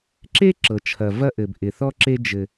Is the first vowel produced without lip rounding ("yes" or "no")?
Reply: yes